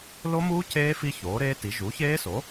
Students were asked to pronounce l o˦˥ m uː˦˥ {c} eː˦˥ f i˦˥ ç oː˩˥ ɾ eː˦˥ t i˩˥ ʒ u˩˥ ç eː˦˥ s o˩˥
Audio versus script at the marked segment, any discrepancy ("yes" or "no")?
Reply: no